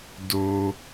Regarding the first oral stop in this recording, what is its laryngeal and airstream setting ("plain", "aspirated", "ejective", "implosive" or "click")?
plain